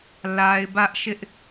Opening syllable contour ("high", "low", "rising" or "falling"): high